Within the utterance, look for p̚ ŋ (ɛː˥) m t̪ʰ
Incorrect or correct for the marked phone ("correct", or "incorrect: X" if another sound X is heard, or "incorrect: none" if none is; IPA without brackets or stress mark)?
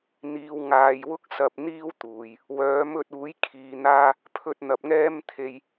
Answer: correct